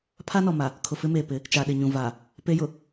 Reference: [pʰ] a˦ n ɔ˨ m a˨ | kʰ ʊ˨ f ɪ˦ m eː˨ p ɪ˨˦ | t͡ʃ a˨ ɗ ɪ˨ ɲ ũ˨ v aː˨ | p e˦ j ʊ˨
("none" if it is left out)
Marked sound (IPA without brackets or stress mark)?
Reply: pʰ